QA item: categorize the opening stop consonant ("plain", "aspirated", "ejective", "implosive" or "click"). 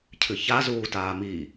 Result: aspirated